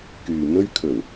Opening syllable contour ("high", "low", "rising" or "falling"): low